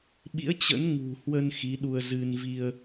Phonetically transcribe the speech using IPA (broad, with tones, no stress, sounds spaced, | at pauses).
ɓ ḭ˧˥ ə̯ t͡ɕ ə̰˧˥ n ŋ ṳ˨˩ h w ə˧ n x i˨˦ ɗ u˧ ə̯ z ɨ˧ n v i˧ ə̯